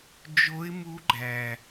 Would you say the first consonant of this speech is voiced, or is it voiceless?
voiced